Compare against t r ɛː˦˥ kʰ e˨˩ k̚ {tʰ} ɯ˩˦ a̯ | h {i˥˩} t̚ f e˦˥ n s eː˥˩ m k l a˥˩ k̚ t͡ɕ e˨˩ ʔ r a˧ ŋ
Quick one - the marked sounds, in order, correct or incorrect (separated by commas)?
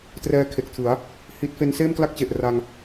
correct, incorrect